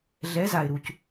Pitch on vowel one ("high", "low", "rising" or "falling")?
rising